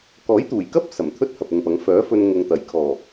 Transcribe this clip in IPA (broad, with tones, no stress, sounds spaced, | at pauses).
k ɔː˨˥ j t̪ uː˨˩ j k ɐ˥ p̚ s ɐ˨˩ m t̪ʰ ɵ˥ t̚ h ɐ˨ p̚ ʊ˨ ŋ p ɐ˨˧ ŋ f œː˨˥ f ɵ˧ n ŋ ʊ˨ ŋ t̪ ɐ˨˩ j kʰ ɔː˨˩